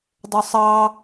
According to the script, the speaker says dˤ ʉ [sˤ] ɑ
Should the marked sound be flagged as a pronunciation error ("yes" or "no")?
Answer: no